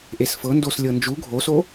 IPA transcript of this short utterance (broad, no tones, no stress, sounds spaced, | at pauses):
ʔ e s f ɤ n d o s lʲ ɤ n d͡ʒ u ɡʱ o s o